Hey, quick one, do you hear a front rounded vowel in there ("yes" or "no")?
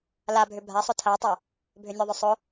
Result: yes